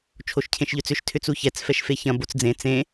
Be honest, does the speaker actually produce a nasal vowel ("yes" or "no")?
yes